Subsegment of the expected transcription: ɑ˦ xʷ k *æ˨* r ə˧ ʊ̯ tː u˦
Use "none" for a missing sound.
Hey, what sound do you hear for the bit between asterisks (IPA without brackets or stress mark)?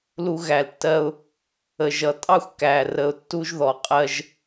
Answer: æ˨